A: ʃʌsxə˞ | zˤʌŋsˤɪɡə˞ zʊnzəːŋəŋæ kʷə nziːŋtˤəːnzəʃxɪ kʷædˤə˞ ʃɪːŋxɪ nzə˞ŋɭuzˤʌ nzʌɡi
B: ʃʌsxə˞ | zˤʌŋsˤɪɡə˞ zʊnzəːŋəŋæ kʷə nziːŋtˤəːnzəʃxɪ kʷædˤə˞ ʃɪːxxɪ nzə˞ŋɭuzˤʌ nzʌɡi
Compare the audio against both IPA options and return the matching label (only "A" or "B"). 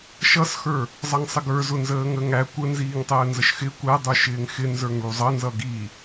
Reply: A